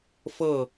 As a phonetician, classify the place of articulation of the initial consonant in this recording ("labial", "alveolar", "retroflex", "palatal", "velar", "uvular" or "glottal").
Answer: labial